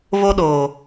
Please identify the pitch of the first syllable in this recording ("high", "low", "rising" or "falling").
high